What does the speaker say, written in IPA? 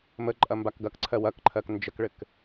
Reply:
məǃʼɐ mbakɡɐkǀʰɜ wɐkǃʰɜk nd͡ʒəkɭɘk

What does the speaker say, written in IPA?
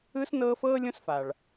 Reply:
ɯ˥s nɤː˥ fɤː˥ lʲõ˥sfa˩ɭ

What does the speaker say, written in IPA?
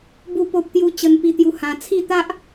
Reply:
bu˥˧po˦p̚t̪ju˦ t͡ɕə˧npi˧t̪ju˧ hã˧ t͡sʰi˥˧t̪a˦ʔ

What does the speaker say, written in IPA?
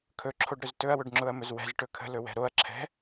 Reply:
kʰɵǁʰoɖɾɵz tɵɐ̯wɵɖŋ͡ǁʊɐ̯mɵz wɛ̤zʈɵ kʰə̤lɵwɛ̤ ɾoɐ̯ǁʰɛ̤

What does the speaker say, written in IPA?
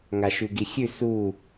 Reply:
ŋaʃʉɡixʲʉ su

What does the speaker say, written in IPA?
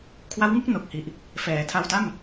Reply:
kʰwa˦˥wŋu˥˩k̚ no˨˩k̚hi˨˩ʔ | fɛː˩˦ tʰa˧wta˥˩m

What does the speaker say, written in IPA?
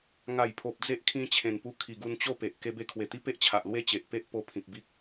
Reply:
ŋa˨˩jpʰo˨p̚ d͡ze˦ʔkʰĩ˧t͡ɕʰẽ˨˩npu˧ kʰi˨˩ɡu˧nt͡ɕo˥˧pe˨ʔ ke˧be˧kʰwe˨˩t̪i˦ pe˦ʔt͡ɕʰa˨ʔlwe˦ t͡ɕe˨ʔpe˦ʔ po˧ pʰĩ˨p̚bi˦k̚

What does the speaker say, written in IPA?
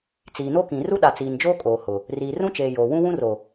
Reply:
t͡siː˨no˦kĩ˨ ru˦ɗa˨t͡siː˨nd͡ʒoː˦ kʼoː˨hʊ˨ | riː˨rũ˦t͡ʃeː˨ joː˨ wũ˦wũ˦ro˨

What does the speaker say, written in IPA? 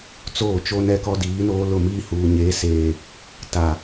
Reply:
t͡soː˦˨t͡ʃo˦nɛ˦kɔ˦ diː˨˦noː˦ lʊ˦˨miː˦ huː˨ɲeː˨˦seː˨ | ta˨

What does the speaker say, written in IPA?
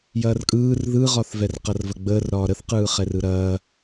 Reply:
jɐːrkʼɯːr ðɯʁɒθvɛr qɐrvɐɡ͡bəːrɾɒː ɾəθqɯːχɛrɯ ɾɐː

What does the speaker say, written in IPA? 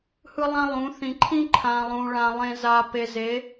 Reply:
hɯ˦lˠã˦lˠũ˨˦ θĩ˨ǃʰĩ˦ ǃʰã˨ lˠũ˨ɭã˨ lˠẽ˨za˨ pe˨ze˨˦

